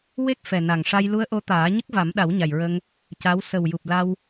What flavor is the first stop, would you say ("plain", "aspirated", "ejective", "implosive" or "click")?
plain